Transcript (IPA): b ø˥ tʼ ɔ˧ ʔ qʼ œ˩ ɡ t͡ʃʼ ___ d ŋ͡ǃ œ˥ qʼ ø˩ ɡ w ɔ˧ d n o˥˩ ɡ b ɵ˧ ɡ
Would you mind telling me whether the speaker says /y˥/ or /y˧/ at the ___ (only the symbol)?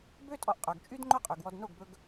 y˥